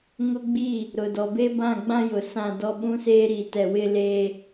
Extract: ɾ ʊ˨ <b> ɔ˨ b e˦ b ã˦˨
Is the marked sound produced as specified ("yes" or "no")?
no